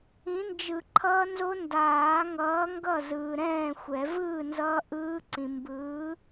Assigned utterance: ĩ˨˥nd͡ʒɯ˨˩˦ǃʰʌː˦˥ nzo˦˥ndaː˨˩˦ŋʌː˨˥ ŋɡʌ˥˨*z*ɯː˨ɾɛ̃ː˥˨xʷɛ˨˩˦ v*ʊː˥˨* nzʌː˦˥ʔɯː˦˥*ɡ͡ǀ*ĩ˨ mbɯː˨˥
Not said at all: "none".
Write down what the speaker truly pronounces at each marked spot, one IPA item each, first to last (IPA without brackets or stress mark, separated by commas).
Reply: z, ɯː˥˨, ǀ